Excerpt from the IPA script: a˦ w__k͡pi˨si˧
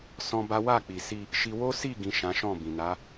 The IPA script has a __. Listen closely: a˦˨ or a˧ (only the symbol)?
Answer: a˦˨